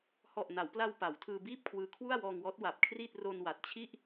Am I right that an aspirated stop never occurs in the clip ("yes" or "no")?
no